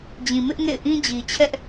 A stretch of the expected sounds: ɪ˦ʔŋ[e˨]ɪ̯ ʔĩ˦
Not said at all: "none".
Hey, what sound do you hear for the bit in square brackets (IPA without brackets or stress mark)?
ḛ˦˨